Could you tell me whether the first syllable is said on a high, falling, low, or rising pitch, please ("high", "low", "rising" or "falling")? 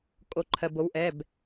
rising